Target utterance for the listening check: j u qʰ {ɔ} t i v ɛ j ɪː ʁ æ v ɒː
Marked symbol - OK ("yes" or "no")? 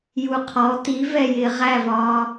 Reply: yes